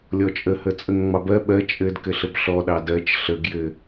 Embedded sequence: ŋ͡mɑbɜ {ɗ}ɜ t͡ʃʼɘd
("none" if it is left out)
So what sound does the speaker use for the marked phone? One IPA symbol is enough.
ɓ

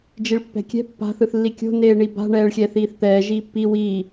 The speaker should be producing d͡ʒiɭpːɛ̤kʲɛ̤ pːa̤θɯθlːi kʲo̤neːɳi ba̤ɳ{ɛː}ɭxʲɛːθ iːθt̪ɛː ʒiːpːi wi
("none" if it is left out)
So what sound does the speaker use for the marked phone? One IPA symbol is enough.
ɛː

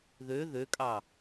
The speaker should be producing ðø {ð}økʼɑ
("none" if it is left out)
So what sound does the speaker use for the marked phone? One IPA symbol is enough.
ð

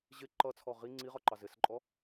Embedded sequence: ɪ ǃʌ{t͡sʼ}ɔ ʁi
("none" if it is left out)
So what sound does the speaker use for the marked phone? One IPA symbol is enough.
t͡sʰ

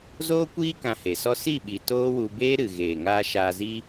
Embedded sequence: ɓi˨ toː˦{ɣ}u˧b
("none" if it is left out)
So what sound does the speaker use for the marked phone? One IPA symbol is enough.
w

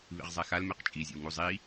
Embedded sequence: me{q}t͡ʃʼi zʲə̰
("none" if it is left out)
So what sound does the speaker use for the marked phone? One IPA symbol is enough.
q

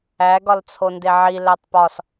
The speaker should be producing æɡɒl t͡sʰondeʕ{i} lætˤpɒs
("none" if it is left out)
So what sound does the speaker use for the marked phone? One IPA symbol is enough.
i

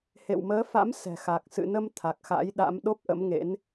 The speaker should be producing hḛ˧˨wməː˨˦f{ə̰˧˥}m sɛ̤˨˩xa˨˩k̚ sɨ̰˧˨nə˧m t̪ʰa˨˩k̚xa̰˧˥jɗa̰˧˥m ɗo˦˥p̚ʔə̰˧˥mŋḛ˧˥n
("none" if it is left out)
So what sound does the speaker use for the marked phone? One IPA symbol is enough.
a̰˧˥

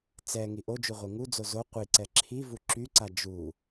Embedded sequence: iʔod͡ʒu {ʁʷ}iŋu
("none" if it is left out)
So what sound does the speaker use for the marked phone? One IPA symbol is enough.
ʁʷ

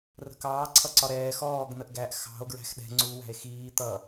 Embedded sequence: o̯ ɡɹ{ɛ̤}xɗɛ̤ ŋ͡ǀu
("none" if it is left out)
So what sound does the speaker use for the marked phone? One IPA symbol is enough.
æ̤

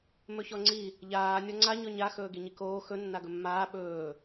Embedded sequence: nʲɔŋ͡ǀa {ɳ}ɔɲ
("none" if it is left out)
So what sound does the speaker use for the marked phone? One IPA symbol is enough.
ɲ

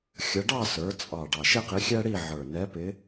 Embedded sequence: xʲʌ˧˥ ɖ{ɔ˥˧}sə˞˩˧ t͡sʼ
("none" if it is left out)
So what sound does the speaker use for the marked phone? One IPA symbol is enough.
ɑ˥˧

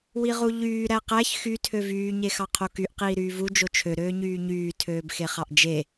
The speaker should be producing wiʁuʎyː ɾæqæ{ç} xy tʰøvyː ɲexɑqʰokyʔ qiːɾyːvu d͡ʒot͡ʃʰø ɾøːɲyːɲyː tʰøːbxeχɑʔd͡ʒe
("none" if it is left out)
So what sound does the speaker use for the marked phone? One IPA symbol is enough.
ç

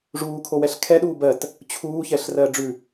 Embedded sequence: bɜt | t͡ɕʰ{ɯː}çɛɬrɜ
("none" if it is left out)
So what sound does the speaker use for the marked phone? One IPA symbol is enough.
uː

